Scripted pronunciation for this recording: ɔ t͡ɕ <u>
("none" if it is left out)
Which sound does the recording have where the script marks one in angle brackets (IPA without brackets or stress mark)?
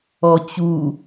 u